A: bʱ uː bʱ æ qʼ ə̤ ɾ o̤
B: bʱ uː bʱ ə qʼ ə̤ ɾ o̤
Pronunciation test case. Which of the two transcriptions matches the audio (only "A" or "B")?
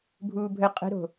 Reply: B